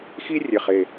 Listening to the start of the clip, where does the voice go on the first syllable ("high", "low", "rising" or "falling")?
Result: high